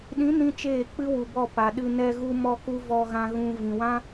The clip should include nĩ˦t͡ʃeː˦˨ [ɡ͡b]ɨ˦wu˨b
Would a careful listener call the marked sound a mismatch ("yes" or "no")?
yes